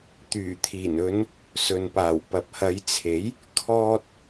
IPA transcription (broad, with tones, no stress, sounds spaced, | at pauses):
t̪ yː˨˩ t̪ʰ iː˨˩ n ɵ˨˧ n | s ɵ˨ n p aː˨˩ w p ɐ˨ p̚ h ɐ˨˧ j t͡sʰ e˨˥ j | kʰ ɔː˧ t̚